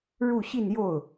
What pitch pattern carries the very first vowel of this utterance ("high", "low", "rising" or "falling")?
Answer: falling